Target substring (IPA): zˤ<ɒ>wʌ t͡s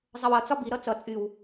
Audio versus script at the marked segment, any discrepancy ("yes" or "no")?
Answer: yes